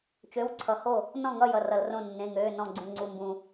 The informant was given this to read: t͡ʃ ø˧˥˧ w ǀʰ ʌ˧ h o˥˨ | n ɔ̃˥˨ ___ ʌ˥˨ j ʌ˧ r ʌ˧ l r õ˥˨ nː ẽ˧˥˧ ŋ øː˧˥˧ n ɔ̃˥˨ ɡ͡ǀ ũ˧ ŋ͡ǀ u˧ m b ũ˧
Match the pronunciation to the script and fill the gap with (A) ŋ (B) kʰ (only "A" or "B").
A